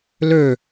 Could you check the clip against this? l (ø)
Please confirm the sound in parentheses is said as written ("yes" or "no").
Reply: yes